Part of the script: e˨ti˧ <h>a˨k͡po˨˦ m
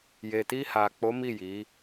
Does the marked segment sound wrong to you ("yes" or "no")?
no